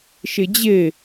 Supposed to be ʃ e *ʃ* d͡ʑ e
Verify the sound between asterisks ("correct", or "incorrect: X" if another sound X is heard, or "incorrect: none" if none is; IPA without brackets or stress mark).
incorrect: none